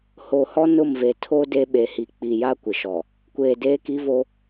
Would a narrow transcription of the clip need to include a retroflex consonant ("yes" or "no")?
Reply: no